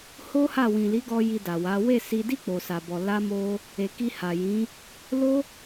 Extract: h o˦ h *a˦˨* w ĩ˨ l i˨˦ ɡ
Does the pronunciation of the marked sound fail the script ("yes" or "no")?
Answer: no